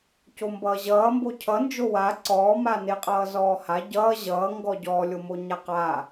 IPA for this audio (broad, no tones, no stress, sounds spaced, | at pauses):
c o m b ʌː ʑ ʌː m b o cʰ ʌ n d͡ʒ o w a ǀ ɔː m a n e qʼ ʌː z ɔː h a ɟ ʌː ʑ ʌː ŋ ɡ ɔ ɟ ɔː lʲ o m o ɲ a q a